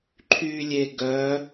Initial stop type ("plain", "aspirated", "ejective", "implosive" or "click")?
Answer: click